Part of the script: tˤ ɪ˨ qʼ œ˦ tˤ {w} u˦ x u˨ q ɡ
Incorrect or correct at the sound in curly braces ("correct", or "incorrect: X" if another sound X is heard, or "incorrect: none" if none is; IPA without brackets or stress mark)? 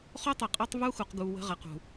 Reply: incorrect: v